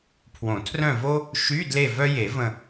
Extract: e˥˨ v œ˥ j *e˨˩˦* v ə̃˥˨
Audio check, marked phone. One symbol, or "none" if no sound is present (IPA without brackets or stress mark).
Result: e˨˩˦